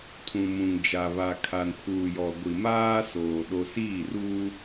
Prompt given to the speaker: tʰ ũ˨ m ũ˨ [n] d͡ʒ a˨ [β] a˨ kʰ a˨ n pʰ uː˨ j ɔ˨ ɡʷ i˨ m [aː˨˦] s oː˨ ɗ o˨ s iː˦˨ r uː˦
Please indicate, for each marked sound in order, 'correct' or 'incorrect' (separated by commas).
incorrect, correct, incorrect